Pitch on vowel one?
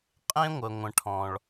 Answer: high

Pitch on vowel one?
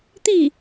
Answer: falling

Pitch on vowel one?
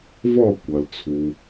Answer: falling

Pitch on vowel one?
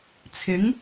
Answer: rising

